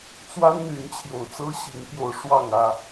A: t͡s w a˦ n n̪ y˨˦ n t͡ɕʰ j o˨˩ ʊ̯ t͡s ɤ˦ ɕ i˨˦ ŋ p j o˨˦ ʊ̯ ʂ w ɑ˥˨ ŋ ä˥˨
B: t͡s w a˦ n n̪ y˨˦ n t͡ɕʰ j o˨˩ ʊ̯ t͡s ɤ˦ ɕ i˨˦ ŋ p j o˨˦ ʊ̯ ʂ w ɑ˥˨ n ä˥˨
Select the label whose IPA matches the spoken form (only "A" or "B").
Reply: A